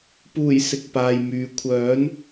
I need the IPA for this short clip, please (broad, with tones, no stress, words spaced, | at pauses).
puː˨˩j sɪ˨k̚paː˨jmyː˨ kʷʰœː˨˥n